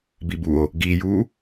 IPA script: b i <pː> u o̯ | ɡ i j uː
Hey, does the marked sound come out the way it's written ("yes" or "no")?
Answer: no